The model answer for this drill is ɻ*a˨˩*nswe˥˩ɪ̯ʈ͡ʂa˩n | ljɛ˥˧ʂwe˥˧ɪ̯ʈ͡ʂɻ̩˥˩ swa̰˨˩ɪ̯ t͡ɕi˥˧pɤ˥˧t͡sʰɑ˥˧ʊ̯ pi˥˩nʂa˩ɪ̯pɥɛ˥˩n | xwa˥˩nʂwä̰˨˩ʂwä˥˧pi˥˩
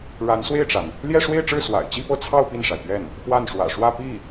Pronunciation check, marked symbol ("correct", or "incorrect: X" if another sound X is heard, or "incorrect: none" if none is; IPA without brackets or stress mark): incorrect: a˧˥